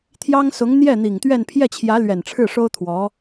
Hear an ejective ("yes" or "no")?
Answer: no